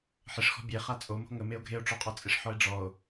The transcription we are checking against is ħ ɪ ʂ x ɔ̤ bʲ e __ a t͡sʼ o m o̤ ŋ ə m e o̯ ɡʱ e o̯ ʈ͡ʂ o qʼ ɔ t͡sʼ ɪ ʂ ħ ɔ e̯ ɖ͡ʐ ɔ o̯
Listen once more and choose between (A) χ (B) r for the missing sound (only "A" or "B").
A